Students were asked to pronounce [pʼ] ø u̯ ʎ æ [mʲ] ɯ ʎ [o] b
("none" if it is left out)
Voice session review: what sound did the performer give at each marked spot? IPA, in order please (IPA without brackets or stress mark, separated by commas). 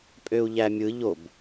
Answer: pʼ, mʲ, o